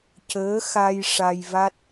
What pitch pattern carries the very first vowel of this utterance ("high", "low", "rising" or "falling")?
rising